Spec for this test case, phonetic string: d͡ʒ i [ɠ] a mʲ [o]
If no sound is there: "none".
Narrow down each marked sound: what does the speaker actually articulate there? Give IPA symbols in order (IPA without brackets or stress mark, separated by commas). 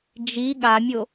ɠ, o